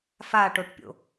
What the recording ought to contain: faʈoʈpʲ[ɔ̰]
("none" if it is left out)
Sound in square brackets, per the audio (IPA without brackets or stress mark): o̰